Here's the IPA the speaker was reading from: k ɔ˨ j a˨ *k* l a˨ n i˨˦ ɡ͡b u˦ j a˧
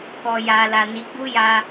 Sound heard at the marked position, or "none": none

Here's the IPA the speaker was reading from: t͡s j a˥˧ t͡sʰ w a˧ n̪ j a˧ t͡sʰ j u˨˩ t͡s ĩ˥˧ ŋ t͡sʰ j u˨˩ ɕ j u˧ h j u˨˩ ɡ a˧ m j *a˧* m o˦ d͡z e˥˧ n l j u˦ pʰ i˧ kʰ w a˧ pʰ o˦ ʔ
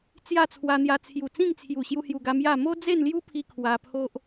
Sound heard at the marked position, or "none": a˥˧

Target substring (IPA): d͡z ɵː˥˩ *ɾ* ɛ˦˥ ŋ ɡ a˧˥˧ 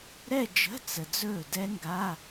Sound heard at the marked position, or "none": d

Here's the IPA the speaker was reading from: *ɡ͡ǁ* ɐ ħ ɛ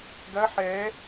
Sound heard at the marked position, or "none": ɡ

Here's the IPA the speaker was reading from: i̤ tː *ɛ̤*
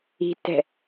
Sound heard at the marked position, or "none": ɛ̤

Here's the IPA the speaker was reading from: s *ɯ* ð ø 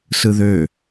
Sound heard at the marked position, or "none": ɯ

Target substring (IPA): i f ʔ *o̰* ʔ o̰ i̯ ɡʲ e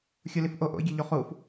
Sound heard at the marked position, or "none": o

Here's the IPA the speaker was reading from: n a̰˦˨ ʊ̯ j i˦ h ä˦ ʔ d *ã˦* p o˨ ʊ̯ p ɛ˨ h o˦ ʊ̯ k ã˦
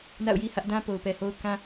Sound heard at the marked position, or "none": ã˦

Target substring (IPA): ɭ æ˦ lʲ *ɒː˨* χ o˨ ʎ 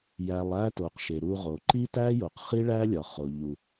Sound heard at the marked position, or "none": ɒ˨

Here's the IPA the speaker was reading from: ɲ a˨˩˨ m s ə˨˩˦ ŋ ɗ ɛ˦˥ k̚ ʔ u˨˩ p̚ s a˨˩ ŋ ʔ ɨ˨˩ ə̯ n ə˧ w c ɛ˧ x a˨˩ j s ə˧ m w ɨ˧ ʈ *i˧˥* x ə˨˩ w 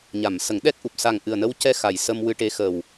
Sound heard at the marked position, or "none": e˧˥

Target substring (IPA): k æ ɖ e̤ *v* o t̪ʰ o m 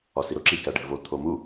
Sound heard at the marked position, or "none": v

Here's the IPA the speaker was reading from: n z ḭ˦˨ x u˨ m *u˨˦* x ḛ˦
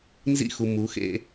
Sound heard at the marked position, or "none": u˨˦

